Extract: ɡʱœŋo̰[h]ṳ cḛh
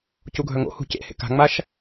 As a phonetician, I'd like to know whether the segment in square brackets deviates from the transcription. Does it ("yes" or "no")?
no